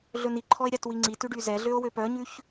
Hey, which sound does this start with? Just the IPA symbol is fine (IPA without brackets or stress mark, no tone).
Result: ɮ